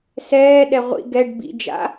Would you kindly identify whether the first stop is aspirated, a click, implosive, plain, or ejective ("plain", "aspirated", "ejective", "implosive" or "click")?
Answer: implosive